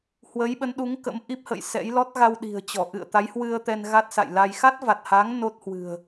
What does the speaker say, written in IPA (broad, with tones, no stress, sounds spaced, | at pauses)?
h w ə˨˦ j ɓ ə˨˦ n ɗ u˨˦ ŋ k ə̰˧˥ m ʔ i˦˥ p̚ h ə̰˧˨ j s ɛ̰˧˥ j l ɔ˦˥ t̚ ɣ a˧ w ɗ i̤˨˩ ə̯ t͡ɕ ɔ˧˩ ʔ ɨ̰˧˨ ə̯ t̪ a˨˦ j h w ɨ˧ ə̯ t̪ ɛ˧ n ɣ a˦˥ t̚ s a̰˧˨ j l a˧ j x a˦˥ t̚ v a˨˩ t̚ h a˨˦ ŋ n o˦˥ t̚ h w ɨ̤˨˩ ə̯